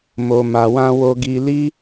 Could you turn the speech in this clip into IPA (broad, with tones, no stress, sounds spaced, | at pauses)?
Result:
m o˨ m a˨ w ã˧ w o˧ ɡ i˧ l i˦